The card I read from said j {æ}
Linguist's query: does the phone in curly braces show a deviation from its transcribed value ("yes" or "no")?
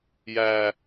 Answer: yes